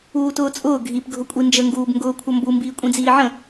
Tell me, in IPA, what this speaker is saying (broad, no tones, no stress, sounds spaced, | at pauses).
uː t ʊː t͡sʼ ʊː ɡʱ i p ɡʱ ʊ kʷʼ i n d͡ʒ ə ŋ ɡ uː b ŋ ɡ ʊː kʷʰ ʌ m b u m b iː kʷʼ ĩ d͡z iː ʕ ə̃